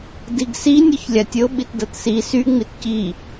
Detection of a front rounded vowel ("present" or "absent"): present